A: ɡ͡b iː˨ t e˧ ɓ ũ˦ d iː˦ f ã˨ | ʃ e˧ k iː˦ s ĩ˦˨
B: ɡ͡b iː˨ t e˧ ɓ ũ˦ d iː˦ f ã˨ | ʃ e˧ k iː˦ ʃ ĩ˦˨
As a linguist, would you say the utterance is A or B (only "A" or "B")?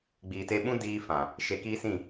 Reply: A